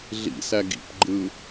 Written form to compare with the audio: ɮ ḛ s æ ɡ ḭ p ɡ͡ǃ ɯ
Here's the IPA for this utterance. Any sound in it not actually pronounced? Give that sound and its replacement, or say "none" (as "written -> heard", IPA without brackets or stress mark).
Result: ḛ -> ḭ